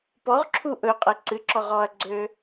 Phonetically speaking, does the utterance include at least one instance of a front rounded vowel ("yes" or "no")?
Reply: yes